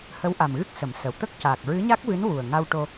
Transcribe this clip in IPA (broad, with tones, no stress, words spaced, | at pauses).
hə˧˥wʔa˨˩m ɣɨ˦˥k̚ sə˨˩˦m sə˨˩˨wt̪ə˦˥k̚ caː˨˩k̚ɹɨ˧˥ɲa˦˥k̚vɨ˧˥n wu˨˩ə̯ ŋa˧wʈo˧